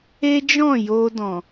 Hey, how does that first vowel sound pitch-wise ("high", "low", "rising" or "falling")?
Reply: high